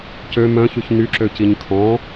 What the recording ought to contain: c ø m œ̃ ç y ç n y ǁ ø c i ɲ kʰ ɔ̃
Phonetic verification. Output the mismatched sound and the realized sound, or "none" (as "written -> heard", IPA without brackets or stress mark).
none